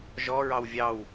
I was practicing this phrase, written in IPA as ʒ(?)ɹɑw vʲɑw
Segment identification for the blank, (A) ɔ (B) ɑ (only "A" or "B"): A